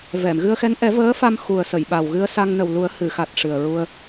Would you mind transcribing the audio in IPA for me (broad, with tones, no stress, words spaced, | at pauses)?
vɛ˨˩˨mɣɨ˧ə̯xɛ˧˥n ʔɛ˨˩˦ vəː˧˥fa˧mxu˨˩ə̯sə˨˩˨j ɓa˨˩wɣɨ˧ə̯ sa˧ŋnə˨˩wlu˨˩˦ə̯ hɨ˨˩˨xa˨˩t̚ ʂɨ˨˩ə̯ɹu˧ə̯